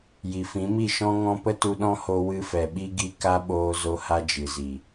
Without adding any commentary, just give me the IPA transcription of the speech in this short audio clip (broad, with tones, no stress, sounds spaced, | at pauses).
j i˨ f ĩ˨˦ m i˦˨ ʃ ɔ̃˧ ŋ ɔ̃˧ p ə˦ t u˧ ɗ ɔ̃˦ h o˧ w ɨ˧ f ɛ˨ ɓ i˧ ɡ i˧ k a˦ ɓ oː˧ z o˧ h a˧ d͡ʒ ɨ˨ z i˨